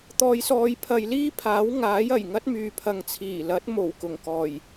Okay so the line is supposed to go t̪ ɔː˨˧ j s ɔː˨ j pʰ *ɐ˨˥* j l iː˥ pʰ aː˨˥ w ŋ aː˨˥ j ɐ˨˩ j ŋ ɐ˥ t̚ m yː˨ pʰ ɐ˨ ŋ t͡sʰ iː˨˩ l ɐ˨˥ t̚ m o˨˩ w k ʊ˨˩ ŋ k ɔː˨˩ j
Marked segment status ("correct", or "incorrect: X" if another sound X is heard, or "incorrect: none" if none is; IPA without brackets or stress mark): incorrect: ɐ˨